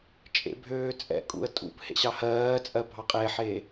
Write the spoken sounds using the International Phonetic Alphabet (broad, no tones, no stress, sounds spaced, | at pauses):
t͡ʃʼ ḛ bʱ øː t͡sʼ ɛ̰ kʼ ṵ ə̯ tʼ ṵ p h ḛ ɕ ɑ h ɜː t͡sʼ ɜ bʱ ɑ qʼ e ħ e